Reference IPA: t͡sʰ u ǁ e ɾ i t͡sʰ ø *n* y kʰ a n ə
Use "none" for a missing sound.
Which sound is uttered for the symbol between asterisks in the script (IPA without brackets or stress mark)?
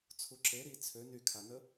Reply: n